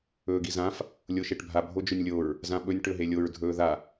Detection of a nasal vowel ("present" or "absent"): present